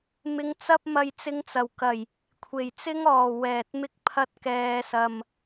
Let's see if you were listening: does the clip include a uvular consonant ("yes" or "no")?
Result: no